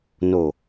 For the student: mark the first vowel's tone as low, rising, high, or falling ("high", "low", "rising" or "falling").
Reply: low